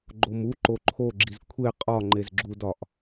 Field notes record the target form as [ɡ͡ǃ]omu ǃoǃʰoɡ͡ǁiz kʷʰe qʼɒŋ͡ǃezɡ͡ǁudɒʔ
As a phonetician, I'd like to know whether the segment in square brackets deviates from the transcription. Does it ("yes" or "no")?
no